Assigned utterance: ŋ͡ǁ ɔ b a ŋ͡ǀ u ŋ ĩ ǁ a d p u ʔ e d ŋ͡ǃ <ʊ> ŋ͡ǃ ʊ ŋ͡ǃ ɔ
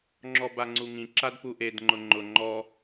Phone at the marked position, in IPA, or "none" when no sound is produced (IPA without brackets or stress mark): ʊ